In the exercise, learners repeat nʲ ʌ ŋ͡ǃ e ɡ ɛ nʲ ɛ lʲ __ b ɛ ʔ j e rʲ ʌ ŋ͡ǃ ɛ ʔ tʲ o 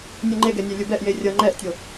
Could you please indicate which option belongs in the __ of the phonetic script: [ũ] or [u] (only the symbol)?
u